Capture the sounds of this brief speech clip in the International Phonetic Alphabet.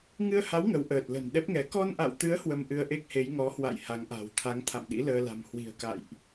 ŋɨ˧ə̯ha˨˦w ŋə˨˦wʔəː˨˩t̚ lə̤˨˩nɗɛ˦˥p̚ŋɛ˨˦ kɔ˧nʔa̰˧˨wt̪ɨ˨˦ə̯ hwə˧mʔɨ˧ə̯ʔe˦˥k̚ he˨˦j ŋɔ˨˦hwa̰˧˨j ha˨˦ŋʔa̤˨˩w t̪ʰa˨˦ŋt̪ʰa̰˧˨mɗḭ˧˥ ləː˧la̤˨˩m hwi̤˨˩ə̯ka̰˧˨jʔ

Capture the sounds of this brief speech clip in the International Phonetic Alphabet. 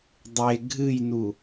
dˤe ɡʱɨjnu

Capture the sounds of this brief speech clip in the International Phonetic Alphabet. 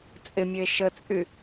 t͡sʼɪmʲəe̯ ʃət͡sʼy

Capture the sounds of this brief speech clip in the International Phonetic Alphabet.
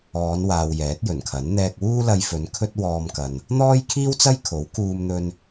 ɔː˨˧nwaː˨w jɛː˨˥t̚jɵ˨˩nkʰɐ˨˥n n̪ɛː˧k̚wuː˥lɐ˧jfɵ˨˧n kʰɵ˥t̚wɔː˧mkɐ˨n | n̪ɔː˥jkʰiː˥wt͡sɐ˥jkʰo˨˥w kuː˧mn̪ɵ˧n

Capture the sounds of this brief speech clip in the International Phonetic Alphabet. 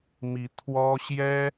mi˧˥t̪ʰwɔ˥ ɕjɛ˥

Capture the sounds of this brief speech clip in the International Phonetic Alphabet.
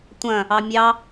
tʷɐ̃ | ɑmʲɑ

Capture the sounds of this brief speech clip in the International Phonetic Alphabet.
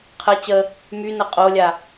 qʰə t͡ɕə | mynə qʼolʲa

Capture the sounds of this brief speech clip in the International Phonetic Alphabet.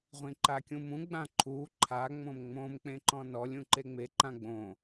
ʁʷĩǃakʲũmũ ɡ͡bãǃʰu ǃʰa ŋ͡mõmŋ͡mõm k͡pẽǃɔ̃nɔlʲ ũǃeŋ͡me ǃãɡ͡bõ

